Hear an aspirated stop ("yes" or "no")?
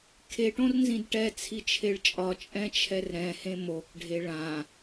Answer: yes